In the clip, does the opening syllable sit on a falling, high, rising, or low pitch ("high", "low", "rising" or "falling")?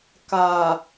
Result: low